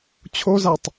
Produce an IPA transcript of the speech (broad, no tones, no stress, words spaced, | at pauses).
t͡ɕʰozatˤ